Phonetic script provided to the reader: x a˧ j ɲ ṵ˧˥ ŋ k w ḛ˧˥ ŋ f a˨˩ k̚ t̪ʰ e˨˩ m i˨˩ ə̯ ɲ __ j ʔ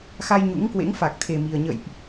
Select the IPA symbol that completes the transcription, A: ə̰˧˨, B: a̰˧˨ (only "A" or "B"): A